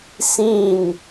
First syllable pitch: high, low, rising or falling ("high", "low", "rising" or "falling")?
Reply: falling